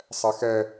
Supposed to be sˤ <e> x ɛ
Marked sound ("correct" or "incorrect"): incorrect